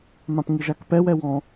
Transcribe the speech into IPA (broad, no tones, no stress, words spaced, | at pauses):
mãpŋiʒakpɛ wɛwɔ̃